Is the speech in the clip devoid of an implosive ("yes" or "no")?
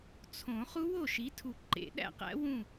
no